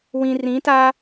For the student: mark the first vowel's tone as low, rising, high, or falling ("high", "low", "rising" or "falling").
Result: low